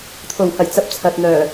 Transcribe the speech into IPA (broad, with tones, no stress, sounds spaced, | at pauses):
t̪ʰ o˨˩ w h ɐ˨˩ j t͡s ɐ˨˥ p̚ t͡sʰ ɐ˨ t̚ n̪ œː˨˩